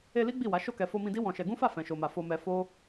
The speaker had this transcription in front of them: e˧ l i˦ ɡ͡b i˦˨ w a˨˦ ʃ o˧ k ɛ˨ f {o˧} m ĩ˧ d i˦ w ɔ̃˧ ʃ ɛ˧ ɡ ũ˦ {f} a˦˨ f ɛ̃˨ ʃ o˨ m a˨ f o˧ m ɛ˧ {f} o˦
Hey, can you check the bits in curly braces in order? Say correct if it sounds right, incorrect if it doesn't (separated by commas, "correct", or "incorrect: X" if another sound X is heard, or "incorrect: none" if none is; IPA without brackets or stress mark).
correct, correct, correct